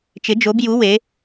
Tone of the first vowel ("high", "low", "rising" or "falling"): rising